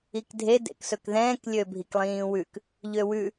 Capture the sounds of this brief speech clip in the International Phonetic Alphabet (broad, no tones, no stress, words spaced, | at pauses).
ikdʱe dḛksɵkðɛ̃ːk lʲøbʱiklˠĩːwʉk | ʎøwʉ